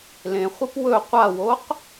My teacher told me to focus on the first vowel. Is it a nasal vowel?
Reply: yes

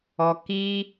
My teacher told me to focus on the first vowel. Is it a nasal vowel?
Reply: no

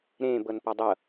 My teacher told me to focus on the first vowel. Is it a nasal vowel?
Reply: yes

